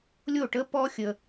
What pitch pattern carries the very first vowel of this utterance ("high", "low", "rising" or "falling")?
falling